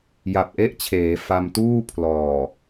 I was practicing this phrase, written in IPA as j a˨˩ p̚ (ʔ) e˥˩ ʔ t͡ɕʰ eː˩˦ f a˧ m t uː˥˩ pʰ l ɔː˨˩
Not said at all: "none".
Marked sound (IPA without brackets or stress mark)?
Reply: ʔ